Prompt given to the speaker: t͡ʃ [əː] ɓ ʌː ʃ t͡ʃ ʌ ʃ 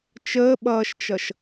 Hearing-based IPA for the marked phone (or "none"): əː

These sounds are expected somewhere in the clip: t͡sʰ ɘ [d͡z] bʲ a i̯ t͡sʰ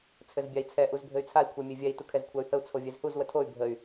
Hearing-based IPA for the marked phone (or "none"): z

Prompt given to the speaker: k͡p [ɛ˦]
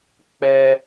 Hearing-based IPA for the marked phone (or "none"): ɛ˦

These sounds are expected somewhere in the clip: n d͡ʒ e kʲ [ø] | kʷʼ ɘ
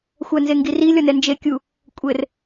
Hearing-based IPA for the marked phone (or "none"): u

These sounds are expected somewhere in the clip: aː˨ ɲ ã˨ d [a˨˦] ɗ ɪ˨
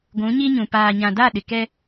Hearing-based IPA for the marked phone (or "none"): a˦˨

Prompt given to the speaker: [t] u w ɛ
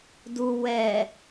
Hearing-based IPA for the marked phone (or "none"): d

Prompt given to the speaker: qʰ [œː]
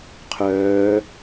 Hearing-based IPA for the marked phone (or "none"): œː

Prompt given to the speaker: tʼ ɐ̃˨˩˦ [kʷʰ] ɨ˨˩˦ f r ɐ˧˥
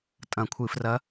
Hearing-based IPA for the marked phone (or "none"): kʷʰ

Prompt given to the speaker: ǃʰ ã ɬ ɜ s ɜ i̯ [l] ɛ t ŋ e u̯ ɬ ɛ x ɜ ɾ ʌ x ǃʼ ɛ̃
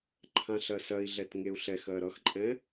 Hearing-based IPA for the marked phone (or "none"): ɮ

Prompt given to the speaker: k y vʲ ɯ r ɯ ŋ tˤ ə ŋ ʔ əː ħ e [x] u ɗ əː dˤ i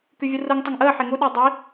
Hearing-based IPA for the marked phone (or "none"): ŋ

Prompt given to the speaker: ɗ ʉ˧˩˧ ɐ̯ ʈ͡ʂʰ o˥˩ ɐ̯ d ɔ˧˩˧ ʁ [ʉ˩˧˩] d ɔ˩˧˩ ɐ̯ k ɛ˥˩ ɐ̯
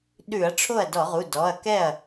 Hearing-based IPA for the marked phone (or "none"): u˩˧˩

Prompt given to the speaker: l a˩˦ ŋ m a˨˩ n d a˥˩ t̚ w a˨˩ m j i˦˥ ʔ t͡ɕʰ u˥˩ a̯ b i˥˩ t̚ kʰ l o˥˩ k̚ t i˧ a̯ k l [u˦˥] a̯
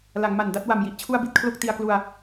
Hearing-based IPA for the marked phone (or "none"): u˧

